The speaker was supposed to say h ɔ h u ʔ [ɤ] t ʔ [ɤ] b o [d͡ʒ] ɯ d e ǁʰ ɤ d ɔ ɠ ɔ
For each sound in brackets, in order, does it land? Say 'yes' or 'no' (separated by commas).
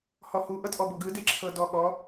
yes, no, no